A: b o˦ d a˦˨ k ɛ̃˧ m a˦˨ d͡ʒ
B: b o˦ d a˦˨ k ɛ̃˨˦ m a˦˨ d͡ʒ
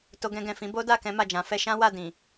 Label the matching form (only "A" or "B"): B